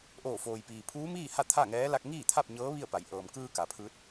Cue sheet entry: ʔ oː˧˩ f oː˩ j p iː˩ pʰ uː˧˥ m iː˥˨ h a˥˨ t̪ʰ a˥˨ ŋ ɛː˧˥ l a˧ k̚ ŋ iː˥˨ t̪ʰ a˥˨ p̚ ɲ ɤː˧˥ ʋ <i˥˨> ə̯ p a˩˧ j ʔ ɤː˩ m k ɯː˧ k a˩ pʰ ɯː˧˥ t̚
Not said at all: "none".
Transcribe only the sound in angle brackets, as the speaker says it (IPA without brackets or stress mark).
i˥˨